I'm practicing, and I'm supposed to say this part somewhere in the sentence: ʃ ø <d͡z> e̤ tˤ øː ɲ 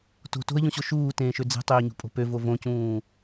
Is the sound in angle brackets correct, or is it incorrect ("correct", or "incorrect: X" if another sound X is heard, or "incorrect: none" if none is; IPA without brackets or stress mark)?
correct